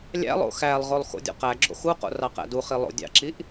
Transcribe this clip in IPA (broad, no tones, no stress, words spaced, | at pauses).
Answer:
lʲæ̰lˠo̰ xælˠʁolˠ xo̰dʲo̰qæɡ͡ǁo̰ xuqo̰ rɑqæ̰duχi lˠo̰ dʲɑ̰ǁiʔ